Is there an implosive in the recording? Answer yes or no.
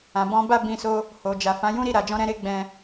no